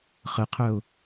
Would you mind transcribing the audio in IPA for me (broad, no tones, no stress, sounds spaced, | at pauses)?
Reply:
χ ə qʰ œ ʊ̯